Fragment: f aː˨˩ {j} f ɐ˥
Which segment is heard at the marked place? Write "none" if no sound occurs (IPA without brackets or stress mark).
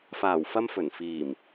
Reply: w